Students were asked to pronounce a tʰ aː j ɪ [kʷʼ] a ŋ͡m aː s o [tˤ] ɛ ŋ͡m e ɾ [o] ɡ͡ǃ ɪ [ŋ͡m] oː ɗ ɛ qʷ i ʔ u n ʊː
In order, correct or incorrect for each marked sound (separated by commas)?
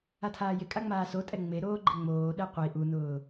incorrect, incorrect, incorrect, correct